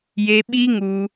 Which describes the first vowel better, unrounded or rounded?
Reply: unrounded